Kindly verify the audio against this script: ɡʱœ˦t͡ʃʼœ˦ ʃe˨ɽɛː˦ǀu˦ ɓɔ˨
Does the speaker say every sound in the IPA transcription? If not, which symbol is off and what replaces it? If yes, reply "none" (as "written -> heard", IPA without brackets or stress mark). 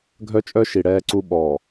e˨ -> i˨